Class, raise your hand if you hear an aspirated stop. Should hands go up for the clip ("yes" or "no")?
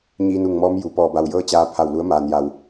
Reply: yes